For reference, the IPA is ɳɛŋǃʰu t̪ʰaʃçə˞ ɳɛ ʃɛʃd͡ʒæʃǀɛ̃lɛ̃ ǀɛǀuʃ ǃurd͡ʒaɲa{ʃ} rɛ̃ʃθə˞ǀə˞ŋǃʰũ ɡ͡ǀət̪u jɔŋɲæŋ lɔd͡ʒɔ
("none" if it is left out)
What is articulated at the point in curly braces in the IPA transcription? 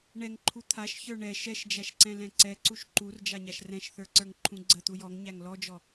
ʃ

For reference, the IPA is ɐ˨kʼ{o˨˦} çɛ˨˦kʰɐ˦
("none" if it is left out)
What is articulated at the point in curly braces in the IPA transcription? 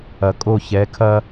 o˦˨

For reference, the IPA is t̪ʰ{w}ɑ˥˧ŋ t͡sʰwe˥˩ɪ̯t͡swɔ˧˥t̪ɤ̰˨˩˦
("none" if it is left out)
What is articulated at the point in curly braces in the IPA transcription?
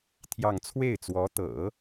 j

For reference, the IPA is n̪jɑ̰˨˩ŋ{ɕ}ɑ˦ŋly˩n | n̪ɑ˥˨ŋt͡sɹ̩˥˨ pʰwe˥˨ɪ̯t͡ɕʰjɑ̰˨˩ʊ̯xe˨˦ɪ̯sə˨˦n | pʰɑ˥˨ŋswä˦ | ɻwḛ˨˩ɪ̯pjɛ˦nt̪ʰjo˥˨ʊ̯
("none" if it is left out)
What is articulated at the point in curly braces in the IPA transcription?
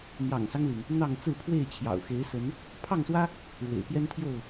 s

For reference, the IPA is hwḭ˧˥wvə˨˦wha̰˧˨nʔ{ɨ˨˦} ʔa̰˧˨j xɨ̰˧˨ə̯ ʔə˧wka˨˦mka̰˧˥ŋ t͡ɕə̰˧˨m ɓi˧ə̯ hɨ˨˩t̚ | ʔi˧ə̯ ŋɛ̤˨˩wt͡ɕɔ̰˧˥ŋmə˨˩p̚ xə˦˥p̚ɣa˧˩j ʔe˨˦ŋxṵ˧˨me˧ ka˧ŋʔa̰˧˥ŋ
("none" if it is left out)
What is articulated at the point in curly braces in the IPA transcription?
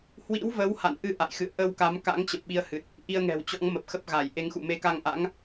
ɨ˨˦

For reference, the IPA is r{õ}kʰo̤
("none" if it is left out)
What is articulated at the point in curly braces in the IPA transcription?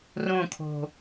õ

